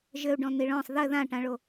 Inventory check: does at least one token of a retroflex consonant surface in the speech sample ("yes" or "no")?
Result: yes